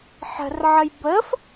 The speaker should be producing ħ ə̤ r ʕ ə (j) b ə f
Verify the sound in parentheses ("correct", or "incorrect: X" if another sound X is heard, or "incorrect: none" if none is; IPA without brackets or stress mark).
correct